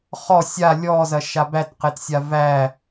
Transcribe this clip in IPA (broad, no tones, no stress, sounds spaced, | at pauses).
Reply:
χ ɔ sʲ a lʲ ɔ z ɐ ʃ a b æ t q e t sʲ a v æ